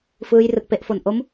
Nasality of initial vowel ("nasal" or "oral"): oral